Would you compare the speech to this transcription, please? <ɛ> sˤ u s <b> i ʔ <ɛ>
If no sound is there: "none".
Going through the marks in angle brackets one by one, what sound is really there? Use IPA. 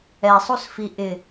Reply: ɛ, f, ɪ

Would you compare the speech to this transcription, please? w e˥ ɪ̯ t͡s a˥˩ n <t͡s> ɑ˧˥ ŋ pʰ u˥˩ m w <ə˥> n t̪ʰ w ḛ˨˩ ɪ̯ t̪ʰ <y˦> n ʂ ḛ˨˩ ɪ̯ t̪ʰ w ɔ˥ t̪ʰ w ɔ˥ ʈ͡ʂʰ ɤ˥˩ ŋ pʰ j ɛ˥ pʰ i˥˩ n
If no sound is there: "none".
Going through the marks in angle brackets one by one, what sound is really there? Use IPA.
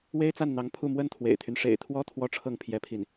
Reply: n̪, ə˥, y˦

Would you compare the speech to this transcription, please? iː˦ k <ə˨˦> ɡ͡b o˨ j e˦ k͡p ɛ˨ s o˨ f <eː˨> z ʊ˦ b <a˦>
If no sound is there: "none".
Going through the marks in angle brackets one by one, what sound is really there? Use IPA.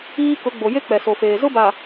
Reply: ʊ˨˦, eː˨, a˨

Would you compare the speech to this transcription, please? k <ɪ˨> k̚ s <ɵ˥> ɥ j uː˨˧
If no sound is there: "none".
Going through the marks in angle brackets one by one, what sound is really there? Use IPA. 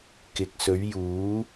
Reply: ɪ˨, ɵ˨˧

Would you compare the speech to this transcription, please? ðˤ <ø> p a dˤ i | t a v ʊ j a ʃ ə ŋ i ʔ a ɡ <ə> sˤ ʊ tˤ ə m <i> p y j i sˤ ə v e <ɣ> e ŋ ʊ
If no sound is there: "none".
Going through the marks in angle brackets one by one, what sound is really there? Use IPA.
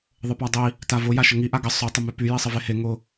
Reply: ə, ə, y, h

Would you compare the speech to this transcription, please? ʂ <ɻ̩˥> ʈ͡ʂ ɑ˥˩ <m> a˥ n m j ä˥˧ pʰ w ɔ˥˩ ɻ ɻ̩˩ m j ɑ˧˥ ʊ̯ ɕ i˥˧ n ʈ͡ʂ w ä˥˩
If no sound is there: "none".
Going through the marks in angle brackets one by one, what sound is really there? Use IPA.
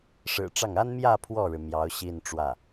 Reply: ɻ̩˨˩, ŋ

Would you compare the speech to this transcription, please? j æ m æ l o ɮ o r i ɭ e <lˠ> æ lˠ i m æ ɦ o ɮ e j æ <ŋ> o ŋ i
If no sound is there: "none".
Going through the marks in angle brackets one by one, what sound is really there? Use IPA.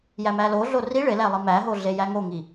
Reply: l, ŋ

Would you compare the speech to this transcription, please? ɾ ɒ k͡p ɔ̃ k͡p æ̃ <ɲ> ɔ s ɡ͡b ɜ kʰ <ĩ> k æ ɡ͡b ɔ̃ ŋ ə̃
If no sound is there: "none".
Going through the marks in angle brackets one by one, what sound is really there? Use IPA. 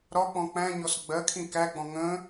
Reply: ɲ, ĩ

